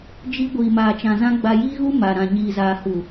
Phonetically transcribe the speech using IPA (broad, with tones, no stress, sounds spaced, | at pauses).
d͡ʒ i˦ ɡʷ iː˨ m aː˨ t͡ʃ ã˨ z ã˦ ɡ͡b a˨ j iː˦ ɣ u˦ m a˨ ɾ ã˨ ɲ iː˨ z aː˨ h u˨